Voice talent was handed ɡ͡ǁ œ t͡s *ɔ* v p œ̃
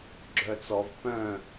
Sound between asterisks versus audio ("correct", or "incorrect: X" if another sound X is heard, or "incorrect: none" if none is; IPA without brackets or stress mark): correct